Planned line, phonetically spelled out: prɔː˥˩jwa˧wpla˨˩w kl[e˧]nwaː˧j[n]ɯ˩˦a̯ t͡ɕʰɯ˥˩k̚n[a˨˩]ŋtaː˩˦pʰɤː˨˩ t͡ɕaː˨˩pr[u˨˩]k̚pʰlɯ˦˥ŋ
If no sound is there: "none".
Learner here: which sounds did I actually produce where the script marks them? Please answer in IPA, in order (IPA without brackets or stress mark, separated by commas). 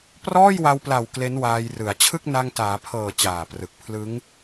e˦˥, r, a˧, ɯ˨˩